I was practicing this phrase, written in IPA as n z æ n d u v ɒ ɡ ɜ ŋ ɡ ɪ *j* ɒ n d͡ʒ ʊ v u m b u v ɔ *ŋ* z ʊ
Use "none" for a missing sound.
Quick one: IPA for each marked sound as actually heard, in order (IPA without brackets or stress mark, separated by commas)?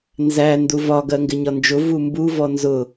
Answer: ɲ, n